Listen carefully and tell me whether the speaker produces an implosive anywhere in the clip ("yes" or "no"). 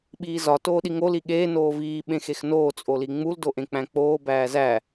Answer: yes